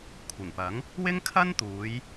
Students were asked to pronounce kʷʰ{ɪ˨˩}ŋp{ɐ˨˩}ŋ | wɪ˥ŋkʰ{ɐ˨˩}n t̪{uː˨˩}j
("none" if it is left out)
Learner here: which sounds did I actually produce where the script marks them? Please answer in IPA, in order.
ɪ˨˩, ɐ˨˥, ɐ˥, uː˨˧

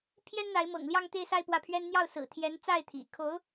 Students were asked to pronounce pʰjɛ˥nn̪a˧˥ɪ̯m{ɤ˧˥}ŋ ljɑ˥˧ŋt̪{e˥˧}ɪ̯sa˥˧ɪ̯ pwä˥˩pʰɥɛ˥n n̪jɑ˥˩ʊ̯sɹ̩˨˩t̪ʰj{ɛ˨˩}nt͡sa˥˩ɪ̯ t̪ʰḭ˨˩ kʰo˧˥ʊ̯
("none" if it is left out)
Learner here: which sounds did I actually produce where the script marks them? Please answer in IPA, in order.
ɤ̰˨˩, e˥˧, ɛ˧˥

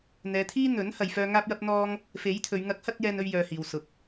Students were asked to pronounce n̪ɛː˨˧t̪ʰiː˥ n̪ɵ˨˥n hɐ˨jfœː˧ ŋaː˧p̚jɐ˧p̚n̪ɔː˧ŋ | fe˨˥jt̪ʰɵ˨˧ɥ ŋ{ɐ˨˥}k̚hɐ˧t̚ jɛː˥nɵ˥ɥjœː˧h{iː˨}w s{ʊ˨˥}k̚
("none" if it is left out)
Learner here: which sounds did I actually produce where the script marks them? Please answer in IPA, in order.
ɐ˨˥, iː˨, ʊ˨

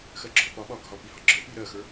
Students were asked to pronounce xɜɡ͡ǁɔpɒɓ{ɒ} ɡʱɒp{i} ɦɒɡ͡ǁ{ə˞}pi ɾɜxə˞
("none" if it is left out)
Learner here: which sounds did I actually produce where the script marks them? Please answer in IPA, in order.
ɒ, i, ə˞

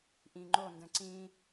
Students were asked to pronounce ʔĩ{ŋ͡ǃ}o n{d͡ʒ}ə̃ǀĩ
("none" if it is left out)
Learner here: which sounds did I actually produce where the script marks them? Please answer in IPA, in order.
ŋ͡ǃ, d

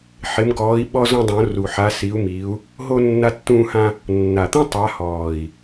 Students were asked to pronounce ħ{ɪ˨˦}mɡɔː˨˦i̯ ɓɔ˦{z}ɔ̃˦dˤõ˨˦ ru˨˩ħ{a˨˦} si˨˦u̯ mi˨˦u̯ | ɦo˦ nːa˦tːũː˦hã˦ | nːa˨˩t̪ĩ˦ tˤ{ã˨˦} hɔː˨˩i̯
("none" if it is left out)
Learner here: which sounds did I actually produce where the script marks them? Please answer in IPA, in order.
ɪ˨˦, z, a˨˦, a˨˦

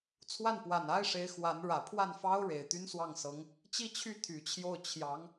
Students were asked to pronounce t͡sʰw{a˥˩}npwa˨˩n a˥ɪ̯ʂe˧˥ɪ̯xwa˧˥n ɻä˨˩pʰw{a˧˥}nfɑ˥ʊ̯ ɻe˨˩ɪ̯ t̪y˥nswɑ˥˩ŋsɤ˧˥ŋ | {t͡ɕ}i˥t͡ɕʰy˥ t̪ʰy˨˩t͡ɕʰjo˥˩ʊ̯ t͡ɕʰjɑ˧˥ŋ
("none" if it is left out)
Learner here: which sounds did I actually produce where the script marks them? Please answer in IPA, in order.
a˥˩, a˥˩, t͡ɕ

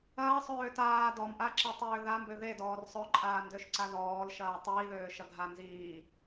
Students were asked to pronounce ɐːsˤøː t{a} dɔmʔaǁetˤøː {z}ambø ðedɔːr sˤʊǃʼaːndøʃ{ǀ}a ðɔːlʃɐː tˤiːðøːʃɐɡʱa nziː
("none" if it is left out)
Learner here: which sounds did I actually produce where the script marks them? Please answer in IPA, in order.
aː, ð, ǀ

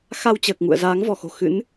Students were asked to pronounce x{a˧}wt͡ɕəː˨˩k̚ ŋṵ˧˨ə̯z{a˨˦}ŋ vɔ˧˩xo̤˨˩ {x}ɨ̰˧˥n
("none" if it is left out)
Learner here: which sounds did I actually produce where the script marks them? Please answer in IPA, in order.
a˧, aː˨˦, x

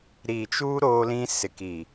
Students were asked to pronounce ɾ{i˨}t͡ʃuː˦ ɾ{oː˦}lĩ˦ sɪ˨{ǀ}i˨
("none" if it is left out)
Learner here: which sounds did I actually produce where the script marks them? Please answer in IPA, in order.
i˨, oː˦, k

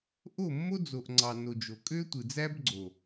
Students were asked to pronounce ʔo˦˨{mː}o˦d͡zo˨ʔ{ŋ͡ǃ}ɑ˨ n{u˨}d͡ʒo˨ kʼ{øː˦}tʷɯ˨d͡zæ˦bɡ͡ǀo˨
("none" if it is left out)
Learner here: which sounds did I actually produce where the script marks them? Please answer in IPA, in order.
mː, ŋ͡ǀ, o˨, ø˦

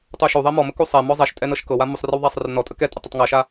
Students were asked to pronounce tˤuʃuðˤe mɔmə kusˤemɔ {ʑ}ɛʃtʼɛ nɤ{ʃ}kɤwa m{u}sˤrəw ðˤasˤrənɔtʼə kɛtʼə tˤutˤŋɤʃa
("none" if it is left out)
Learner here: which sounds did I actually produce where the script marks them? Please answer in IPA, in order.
zˤ, ʃ, u

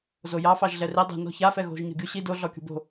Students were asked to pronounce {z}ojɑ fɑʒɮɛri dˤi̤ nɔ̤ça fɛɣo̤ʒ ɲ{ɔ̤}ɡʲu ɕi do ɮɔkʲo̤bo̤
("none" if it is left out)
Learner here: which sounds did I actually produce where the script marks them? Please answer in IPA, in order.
z, ɔ̤

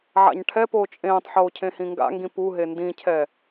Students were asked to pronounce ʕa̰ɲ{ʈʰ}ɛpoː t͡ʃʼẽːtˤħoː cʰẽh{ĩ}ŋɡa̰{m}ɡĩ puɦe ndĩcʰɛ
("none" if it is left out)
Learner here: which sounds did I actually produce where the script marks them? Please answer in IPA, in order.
ʈʰ, ĩ, ŋ

